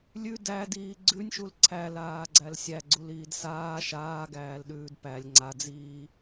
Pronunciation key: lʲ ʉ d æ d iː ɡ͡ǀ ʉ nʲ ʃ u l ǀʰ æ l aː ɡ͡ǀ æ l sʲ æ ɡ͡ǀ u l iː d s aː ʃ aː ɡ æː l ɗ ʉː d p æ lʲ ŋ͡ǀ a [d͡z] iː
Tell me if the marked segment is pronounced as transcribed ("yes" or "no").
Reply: yes